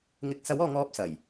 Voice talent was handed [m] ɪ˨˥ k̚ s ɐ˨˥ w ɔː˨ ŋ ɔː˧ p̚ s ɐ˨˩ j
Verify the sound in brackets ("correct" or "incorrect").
incorrect